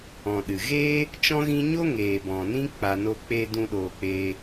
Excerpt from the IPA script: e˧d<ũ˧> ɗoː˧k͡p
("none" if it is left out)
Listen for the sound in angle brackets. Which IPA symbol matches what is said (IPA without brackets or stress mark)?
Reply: ũ˧